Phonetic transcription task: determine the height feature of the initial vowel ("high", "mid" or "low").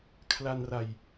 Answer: low